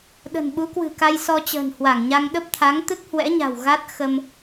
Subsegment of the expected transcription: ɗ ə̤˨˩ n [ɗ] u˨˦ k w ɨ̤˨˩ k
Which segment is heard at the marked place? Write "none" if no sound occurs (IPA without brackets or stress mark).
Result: ɓ